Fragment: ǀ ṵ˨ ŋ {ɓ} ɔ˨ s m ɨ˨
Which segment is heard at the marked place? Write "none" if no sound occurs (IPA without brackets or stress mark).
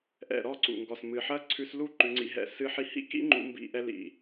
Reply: ɡ